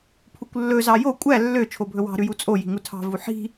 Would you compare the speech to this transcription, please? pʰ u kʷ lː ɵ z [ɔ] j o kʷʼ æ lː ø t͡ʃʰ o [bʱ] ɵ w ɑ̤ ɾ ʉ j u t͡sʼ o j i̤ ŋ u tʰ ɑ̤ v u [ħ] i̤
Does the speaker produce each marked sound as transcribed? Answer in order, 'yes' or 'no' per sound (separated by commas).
no, yes, yes